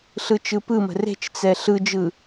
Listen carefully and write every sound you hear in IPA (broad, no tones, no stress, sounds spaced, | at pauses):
ɬ ɯ t͡ʃ ɯ p ɯ m ə̤ r e̤ t͡ʃ t͡s ɛ ɬ ɯ d͡ʒ ɯ